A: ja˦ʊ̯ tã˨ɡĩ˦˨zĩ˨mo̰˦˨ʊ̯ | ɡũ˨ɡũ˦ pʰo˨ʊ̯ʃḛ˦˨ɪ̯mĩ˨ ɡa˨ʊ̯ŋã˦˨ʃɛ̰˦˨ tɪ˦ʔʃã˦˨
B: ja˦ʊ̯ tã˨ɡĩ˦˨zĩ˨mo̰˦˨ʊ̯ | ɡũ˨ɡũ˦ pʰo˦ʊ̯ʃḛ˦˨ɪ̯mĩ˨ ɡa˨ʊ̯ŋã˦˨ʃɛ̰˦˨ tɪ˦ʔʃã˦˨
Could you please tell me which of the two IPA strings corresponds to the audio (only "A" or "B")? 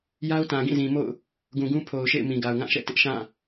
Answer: A